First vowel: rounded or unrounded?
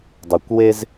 rounded